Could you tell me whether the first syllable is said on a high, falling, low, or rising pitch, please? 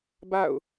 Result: falling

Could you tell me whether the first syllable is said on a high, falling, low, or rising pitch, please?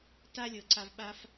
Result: high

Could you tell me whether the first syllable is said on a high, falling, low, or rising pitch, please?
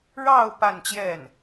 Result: falling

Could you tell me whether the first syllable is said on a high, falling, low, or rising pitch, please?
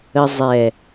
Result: high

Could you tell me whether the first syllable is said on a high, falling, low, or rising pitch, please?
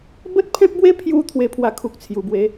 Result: high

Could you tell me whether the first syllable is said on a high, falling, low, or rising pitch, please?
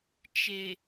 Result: low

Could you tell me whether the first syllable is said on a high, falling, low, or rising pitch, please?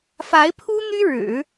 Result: rising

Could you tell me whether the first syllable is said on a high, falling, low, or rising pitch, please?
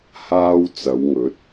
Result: high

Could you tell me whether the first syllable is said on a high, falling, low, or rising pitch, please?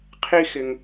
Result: high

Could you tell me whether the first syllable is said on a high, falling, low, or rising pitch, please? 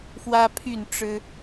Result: high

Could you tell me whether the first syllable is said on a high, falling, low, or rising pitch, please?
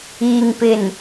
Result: low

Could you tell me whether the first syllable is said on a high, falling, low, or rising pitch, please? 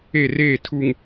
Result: falling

